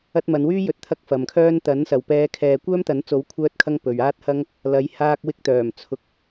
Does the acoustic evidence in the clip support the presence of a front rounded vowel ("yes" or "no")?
yes